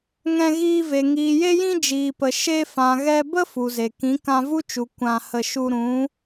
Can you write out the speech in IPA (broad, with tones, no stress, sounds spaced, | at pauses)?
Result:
ŋ ɛ̃˧ ɣ iː˧ v e˨ ŋ iː˨ j e˦ j ĩ˦ d͡ʒ iː˨ p ə˨ ʃ e˧ f ã˨ ɣ ɛ˧ b ə˦ f u˨ z e˨ k ĩ˨˦ k ã˧ v u˦ t͡ʃ u˨ kʷ ã˧ h ə˧ ʃ u˧ ɾ ũ˨˦